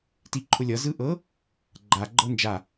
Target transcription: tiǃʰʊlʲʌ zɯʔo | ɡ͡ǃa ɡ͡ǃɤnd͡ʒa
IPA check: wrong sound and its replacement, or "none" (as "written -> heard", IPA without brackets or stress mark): o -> ɤ